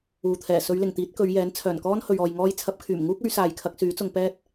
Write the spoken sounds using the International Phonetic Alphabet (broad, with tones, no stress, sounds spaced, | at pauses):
uː˨ t̪ʰ ɛː˨˩ s ɵ˨˧ ɥ l ɪ˨˩ ŋ t̪ iː˨˥ t̚ k ɵ˨˧ ɥ j ɛː˨˥ n t͡sʰ œː˨˩ n k ɔː˥ n h ɵ˨ ɥ ɔː˨ j ŋ ɔː˥ j t͡sʰ ɐ˨˥ p̚ kʰ yː˨˩ m ŋ uː˥ k̚ ɵ˨˥ ɥ s aː˨˧ j kʰ ɐ˨˥ k̚ s yː˨˥ t͡s ʊ˧ ŋ p ɛː˥ t̚